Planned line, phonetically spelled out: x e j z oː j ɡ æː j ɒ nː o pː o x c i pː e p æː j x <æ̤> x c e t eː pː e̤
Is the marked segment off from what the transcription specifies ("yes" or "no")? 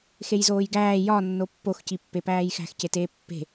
no